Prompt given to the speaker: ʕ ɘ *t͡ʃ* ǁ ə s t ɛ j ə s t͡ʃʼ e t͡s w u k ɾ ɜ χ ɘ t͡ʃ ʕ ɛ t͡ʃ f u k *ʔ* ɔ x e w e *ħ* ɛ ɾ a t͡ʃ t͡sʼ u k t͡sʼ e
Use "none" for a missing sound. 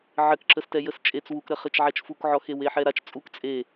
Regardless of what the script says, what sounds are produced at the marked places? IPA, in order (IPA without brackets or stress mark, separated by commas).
k, ʕ, ħ